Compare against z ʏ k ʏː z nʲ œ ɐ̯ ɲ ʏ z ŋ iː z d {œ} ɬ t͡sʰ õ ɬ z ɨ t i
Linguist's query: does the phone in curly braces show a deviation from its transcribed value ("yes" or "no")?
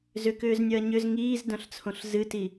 yes